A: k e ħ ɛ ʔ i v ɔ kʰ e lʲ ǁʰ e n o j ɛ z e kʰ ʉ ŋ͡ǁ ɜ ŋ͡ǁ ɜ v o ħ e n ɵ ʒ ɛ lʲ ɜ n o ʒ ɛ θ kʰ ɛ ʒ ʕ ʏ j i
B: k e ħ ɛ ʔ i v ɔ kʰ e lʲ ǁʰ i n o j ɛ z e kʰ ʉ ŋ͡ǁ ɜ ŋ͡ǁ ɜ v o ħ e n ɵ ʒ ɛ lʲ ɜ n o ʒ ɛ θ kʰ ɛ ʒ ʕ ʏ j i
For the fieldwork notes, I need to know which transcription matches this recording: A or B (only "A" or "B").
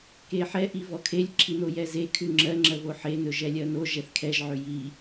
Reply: B